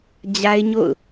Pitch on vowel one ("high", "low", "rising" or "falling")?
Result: high